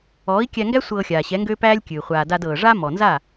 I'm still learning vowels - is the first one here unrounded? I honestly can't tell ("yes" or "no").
no